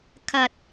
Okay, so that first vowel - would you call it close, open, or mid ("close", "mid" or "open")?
open